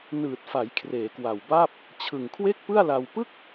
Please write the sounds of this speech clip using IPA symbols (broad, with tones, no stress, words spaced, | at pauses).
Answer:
nɯː˨˩t̚fa˩˦j kʰreː˩˦kwa˨˩wbaː˥˩p̚ | t͡ɕʰɯ˨˩ŋkʰwe˥˩k̚pɯ˥˩a̯la˧w pɯ˥˩k̚